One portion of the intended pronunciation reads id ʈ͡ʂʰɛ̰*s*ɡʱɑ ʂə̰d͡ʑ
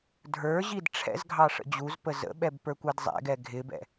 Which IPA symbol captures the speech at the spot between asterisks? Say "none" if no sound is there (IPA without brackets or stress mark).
z